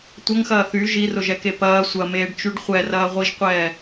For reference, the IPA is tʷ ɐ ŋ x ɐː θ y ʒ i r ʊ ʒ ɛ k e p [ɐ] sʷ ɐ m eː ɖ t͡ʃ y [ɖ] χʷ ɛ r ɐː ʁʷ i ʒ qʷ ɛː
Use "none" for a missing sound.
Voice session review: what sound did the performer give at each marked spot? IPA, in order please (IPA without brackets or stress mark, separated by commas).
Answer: ɐː, ɖ